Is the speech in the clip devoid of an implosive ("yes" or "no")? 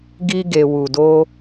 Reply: yes